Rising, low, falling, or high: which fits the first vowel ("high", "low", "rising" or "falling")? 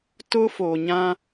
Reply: high